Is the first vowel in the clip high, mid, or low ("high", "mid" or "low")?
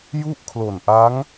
high